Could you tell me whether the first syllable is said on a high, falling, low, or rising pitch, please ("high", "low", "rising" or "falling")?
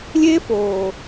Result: high